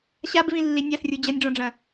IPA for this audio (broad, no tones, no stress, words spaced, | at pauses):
ɕabvĩlːi nʲasrʲu d͡ʑɐnʲɖ͡ʐɔ̃ɖ͡ʐɐ̃